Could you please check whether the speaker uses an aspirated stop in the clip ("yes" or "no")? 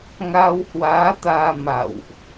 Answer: no